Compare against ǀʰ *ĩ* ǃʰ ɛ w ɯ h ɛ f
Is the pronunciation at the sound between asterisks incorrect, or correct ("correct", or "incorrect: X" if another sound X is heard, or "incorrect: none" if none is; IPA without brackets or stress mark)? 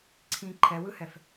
correct